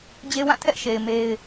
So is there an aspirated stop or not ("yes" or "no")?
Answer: yes